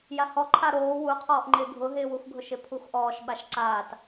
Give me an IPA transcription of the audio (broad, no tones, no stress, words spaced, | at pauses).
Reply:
jahɔǃʰa ɾoː wuqʰɔːʔ ŋ͡ǃɪːɡʱʊɦɪːwux ɡʱʊʃɪpʰuxʔɔːʃ ɓaʃǀaːt